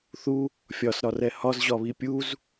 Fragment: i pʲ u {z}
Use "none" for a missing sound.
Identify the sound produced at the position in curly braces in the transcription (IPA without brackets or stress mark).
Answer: z